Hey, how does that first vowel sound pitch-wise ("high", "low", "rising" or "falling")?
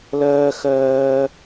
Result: high